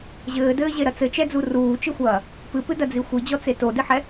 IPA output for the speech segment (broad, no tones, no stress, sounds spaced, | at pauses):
ʑ ɘː d ɘː ʑ e ɾ ɐ t͡s ɘ t͡ʃ ɛ d͡z u r uː t͡ʃ ɨ xʷ ɐː | p ɨ p ɨ d ɐ d͡z i xʷ i d͡ʑ ɔ t͡s e t o d ɨ ħ ɛ